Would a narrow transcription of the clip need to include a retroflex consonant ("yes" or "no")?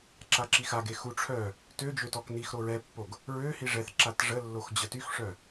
yes